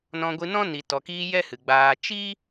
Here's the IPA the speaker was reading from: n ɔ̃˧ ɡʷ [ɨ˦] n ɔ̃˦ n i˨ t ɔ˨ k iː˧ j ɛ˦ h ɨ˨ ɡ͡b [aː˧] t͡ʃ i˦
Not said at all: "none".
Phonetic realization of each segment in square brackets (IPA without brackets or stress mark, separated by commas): ɨ˧, aː˧